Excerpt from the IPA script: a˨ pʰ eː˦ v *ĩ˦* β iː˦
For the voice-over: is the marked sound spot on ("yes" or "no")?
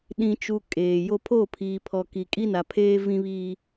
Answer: yes